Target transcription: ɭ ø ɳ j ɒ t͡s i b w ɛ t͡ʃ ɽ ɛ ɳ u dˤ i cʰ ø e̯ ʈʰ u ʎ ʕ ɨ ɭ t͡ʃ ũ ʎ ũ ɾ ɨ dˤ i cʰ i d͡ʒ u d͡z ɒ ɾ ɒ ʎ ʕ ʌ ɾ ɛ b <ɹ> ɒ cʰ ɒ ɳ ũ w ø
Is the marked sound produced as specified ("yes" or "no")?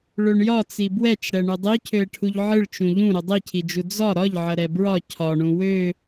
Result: yes